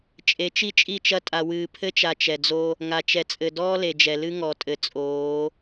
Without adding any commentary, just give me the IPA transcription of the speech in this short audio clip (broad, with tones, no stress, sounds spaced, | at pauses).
t͡ʃʼ e˨˦ t͡ʃ i˦ t͡ʃʼ i˦˨ t͡ʃ ɐ˦ tʼ a˨ w ɨː˨ pʰ ɘ˦ t͡ʃ a˨ t͡ʃ ɛ˨ d͡z o˦ | ŋ a˨ t͡ʃ ɛ˨ t͡sʼ ɘ˨ d ɔː˦ l e˨ d͡ʒ ɛ˨ l ɨ˦ ŋ ɔ˨ tʼ ɘ˨ t͡sʼ oː˨˦